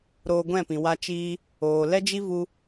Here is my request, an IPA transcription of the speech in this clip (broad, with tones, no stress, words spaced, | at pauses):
ɾoː˧ɡʷɛ̃˦˨pĩ˨ wa˧t͡ʃiː˧ | oː˨ lɛ˦d͡ʒi˦vu˧